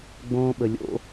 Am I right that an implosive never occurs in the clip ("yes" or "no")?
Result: no